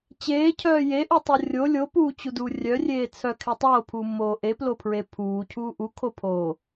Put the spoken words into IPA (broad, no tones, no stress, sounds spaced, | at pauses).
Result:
t͡ɕ eː cʰ œː j e ʔ u tˤ o rʲ o lʲ o p uː t͡ɕ u d uː rʲ œ rʲ eː t͡sʰ œ kʰ e tˤ oː pʰ uː mː oː ʔ e p l o pʰ ɹ e pʰ uː cʰ uː ʔ u kʰ o pʰ oː